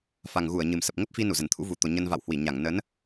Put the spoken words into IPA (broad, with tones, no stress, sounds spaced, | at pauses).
f a˨˩ ŋ ɣ u˧˩ ə̯ ɲ ɨ˨˩ m s ə˨˩ p̚ ŋ ə˦˥ p̚ f i˧ n u˧˩ z ə˧˩ n t̪ʰ ṵ˧˥ v u˨˩ t̪ o˨˩ ɲ ə˧ n v a̰˧˨ w h w i˧˩ ɲ a˧˩ ŋ n ə˨˦ n